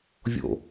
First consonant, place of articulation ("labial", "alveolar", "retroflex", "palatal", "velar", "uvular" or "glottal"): labial